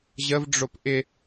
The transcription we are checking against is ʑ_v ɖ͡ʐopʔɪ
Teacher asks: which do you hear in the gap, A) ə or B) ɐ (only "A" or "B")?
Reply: A